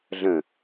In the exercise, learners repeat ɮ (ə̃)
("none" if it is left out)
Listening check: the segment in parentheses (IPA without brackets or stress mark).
ə̃